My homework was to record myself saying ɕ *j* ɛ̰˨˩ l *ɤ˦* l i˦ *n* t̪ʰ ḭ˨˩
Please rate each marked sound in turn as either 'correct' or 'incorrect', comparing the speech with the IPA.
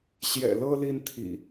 correct, correct, correct

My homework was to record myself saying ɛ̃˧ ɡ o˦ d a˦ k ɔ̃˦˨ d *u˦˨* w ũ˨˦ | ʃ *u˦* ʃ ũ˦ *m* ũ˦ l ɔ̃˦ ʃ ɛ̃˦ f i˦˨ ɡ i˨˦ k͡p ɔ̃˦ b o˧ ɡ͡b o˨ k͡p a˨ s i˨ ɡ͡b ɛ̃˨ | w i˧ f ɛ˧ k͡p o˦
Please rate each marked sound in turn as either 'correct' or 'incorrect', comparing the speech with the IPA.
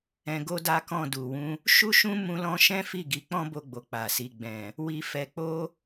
incorrect, correct, correct

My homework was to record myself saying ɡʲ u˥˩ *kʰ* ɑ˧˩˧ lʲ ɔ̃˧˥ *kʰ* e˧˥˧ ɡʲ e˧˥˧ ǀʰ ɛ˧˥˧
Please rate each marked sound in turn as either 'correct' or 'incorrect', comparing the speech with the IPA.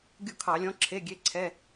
correct, incorrect

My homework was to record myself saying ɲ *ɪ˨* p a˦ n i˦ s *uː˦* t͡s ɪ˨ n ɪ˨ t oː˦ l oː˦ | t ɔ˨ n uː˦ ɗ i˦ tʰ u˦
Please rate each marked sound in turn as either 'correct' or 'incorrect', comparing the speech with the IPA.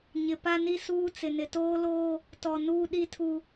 correct, correct

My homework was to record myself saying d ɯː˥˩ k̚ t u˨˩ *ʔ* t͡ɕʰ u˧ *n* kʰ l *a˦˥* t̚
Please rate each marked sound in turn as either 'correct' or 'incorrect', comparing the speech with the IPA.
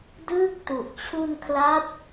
correct, correct, correct

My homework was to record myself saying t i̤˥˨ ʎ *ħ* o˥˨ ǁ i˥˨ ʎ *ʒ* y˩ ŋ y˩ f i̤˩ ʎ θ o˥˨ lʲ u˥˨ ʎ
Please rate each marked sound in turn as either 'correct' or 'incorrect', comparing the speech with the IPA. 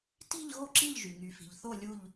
incorrect, correct

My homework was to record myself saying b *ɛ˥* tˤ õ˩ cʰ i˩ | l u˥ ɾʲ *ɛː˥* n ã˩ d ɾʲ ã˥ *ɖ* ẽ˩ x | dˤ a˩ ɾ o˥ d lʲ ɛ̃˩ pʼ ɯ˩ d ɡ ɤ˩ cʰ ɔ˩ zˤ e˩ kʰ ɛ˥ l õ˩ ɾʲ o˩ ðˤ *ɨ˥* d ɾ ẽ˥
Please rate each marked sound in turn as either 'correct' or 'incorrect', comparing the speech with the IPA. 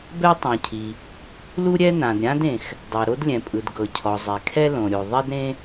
correct, incorrect, incorrect, incorrect

